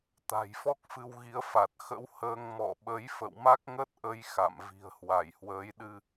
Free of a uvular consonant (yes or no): yes